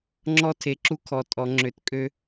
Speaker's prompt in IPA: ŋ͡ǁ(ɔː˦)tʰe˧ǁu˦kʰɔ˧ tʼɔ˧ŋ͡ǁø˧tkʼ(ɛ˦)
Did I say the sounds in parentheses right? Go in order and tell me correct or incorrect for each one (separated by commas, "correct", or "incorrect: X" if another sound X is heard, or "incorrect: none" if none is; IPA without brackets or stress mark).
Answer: incorrect: ɔ˦, incorrect: ø˦